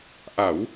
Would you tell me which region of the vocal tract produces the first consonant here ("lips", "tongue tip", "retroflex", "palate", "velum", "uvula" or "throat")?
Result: throat